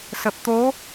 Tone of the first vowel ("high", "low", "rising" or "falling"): low